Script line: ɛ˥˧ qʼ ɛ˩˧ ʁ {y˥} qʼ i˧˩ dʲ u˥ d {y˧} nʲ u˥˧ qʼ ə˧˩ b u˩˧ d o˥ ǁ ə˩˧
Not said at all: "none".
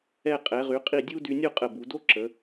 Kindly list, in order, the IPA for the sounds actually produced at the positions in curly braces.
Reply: y˩˧, y˧

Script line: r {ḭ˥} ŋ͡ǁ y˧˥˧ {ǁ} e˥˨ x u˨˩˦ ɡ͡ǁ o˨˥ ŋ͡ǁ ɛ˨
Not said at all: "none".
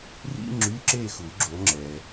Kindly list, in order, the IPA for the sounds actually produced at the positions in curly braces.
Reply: ḭ˥, ǁ

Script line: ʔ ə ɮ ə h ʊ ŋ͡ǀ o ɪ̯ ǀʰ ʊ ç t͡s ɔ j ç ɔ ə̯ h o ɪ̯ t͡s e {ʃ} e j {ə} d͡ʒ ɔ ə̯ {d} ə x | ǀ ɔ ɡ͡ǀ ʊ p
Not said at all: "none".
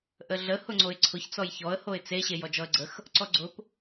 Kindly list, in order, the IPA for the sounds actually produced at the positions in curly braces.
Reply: ɕ, ɔ, ɡ͡ǀ

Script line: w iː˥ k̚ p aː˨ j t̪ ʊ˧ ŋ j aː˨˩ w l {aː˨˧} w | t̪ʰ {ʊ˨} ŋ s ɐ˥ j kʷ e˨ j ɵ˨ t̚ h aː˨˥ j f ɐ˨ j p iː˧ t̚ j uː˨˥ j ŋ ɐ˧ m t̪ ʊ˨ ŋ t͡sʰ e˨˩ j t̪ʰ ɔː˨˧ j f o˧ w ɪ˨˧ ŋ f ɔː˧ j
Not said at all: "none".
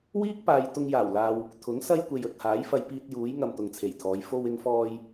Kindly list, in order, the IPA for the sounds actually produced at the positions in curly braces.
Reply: aː˨, ʊ˨˥

